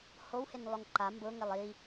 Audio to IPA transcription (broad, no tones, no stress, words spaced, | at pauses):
howhɪnlˠʊŋ ǃa mbʊŋɪlˠ i